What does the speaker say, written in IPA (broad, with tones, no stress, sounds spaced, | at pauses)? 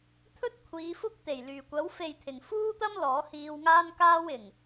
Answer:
t̪ʰ ɵ˥ t̚ kʷʰ iː˨˧ f ʊ˥ k̚ t̪ e˨˩ j l yː˨˩ kʷ ɐ˨˥ w f e˨ j t̪ʰ ɪ˨˩ ŋ f uː˥ t̪ ɐ˥ m l ɔː˨˥ h iː˧ w ŋ aː˥ n k aː˥ w ɪ˨˩ ŋ